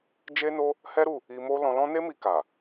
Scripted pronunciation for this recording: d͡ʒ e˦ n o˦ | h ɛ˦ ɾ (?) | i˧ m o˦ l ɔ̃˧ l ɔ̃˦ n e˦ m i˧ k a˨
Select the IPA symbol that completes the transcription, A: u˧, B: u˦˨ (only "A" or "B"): B